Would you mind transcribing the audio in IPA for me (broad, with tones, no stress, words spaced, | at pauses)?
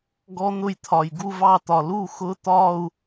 ɡɔ˦˥n̪ʊ˥˩jt̪ʰɒ˨˩j ɡu˥˧vɑ˥˩t̪ɒ˨˩ lu˥˩xʊ˧˥˧t̪ɒ˥˧u̯